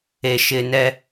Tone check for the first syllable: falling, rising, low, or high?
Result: low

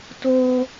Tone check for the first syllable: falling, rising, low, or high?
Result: high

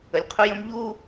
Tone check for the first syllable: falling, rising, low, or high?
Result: low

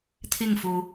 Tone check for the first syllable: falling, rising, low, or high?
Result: falling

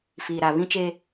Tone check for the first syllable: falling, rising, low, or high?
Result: low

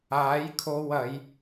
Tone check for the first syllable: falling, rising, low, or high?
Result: rising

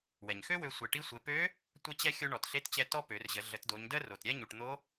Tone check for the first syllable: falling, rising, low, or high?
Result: low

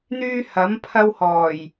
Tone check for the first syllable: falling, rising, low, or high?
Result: high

